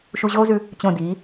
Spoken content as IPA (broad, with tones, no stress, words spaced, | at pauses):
ʃu˧ʑoː˥zʉ˧ | t͡ɕõ˧˩ diː˩˧